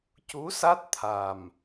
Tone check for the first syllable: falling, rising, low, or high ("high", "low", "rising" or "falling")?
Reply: rising